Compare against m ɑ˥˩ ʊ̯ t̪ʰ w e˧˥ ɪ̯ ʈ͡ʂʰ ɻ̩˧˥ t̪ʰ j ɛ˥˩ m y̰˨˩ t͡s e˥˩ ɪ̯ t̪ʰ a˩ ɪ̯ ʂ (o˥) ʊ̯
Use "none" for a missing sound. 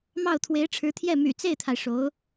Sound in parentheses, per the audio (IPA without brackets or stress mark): o˧˥